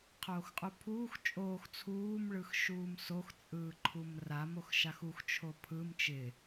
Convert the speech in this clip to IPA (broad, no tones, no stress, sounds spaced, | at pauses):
qʰ oː x qʼ u pʰ uː x t͡ʃʼ oː x t͡sʰ uː m ɭ ɯ x ʃ uː m s o x t͡sʼ ɯː ǃʰ u m r a m o x ʃ a x u x t͡ʃʰ o pʰ ɯ m t͡ʃ ɪ